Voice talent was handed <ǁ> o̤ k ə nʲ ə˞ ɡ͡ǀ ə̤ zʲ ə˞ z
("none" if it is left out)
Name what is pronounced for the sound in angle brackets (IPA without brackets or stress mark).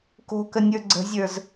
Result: k